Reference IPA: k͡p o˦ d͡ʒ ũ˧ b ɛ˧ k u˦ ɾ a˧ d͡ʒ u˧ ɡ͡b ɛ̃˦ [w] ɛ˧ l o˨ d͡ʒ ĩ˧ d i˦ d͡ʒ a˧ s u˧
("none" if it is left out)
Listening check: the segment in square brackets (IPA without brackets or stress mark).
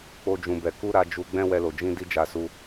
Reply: w